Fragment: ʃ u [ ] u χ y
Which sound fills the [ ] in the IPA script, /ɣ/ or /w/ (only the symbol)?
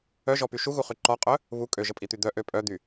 ɣ